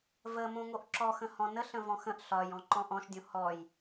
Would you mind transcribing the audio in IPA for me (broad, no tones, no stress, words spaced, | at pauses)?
və mõŋoʔǁɔ xə̃hɔ̃nə ɬə̃vɔ̃xə̃ʔ ɬɒj ɔ̃ǃɔ̃ʔɔ̃ʃdʲõ hɔj